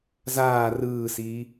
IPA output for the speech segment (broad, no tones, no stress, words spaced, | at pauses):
zaː rɯːsiː